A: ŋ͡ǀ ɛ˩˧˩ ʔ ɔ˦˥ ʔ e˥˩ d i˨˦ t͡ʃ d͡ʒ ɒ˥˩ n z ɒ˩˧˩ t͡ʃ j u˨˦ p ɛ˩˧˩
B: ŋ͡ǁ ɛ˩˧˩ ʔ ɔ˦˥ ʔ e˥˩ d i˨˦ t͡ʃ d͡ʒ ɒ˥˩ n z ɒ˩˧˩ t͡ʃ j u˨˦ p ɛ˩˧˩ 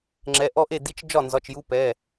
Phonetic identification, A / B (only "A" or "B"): B